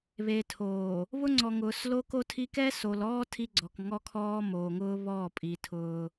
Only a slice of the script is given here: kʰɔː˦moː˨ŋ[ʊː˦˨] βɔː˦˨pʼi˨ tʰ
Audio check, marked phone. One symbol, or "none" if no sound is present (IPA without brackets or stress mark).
ʊː˦